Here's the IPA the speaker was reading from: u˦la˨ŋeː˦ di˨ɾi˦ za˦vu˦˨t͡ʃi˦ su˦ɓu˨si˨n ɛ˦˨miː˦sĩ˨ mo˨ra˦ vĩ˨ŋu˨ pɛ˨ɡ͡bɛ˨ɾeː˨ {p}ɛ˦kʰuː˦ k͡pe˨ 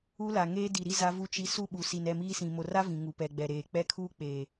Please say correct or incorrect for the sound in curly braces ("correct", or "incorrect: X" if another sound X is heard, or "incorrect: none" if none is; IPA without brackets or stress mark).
incorrect: k͡p